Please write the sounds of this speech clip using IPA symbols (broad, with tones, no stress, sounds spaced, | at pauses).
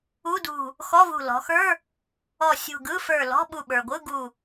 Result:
u˧˥˧ d ṳ˧˩ | x ɔ˧˥˧ v ṳ˧˩ l ɔ̤˩˧ x ə˞˧˥˧ | ɔ˧˩ sʲ ṳ˧˩ ɡ ɯ˧˥˧ f ə˞˧˩ l ɔ̤˧˥˧ ɓ u˧˩ ɓ ə˞˩ ɡʷ ɯ˧˥˧ ɡ u˧˩